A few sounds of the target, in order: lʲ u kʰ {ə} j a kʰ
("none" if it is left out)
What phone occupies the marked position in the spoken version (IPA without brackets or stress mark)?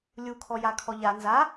ɔ